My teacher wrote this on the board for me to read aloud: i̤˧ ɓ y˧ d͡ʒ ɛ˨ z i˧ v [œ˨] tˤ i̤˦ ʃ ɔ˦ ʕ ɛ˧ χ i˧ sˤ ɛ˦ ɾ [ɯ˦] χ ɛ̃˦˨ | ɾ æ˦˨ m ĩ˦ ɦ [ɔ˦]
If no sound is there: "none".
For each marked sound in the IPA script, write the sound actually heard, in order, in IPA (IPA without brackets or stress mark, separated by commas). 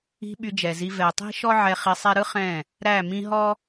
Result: ɛ˨, ɯ˦, ɔ˦